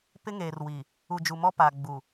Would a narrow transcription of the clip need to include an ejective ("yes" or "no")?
no